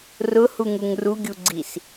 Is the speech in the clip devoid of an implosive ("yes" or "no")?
yes